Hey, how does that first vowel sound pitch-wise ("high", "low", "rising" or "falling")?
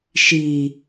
low